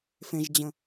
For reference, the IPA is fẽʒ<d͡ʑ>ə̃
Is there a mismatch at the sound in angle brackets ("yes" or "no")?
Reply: no